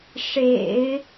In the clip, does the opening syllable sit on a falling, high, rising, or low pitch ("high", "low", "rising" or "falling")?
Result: low